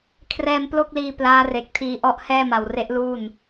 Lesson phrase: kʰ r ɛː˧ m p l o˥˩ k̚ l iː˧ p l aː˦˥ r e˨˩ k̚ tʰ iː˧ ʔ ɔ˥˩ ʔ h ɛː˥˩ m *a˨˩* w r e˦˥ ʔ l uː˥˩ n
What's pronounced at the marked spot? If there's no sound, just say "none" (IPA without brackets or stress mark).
a˨˩